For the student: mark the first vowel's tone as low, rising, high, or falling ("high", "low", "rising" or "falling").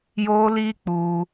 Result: high